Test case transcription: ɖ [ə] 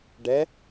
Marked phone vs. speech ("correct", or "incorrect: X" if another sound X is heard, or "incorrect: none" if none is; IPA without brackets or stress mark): incorrect: ɛ